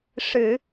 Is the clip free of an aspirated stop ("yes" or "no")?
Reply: yes